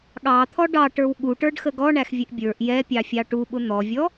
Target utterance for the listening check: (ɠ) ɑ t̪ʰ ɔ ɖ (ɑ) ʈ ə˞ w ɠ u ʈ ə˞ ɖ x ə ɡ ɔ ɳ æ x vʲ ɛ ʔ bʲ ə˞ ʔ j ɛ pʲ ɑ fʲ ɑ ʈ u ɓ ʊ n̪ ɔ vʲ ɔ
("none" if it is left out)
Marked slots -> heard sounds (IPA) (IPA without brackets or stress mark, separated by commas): ɠ, ɑ